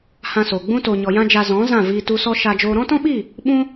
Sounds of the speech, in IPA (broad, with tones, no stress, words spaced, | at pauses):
hã˧soː˨ ɡ͡bũ˧to˨ɲɔ˨ jã˦d͡ʒa˧zɔ̃˨˦ zã˦˨viː˧ tu˧sɔ˦ ʃa˧d͡ʒoː˧ ɾɔ̃˦tɔ̃˦ɓi˦˨ | ɓũ˦